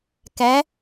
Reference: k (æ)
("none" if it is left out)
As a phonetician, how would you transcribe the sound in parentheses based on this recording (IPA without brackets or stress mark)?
æ